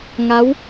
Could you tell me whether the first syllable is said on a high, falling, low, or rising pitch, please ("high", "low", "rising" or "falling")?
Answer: rising